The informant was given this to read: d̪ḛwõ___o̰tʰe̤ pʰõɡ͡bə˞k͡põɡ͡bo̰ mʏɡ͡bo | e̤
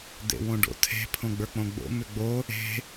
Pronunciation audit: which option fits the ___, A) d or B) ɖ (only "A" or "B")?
B